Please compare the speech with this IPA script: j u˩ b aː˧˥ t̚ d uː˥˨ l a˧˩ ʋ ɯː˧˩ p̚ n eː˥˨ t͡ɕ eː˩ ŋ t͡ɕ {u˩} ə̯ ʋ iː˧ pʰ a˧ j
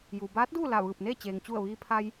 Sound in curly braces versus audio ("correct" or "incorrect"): incorrect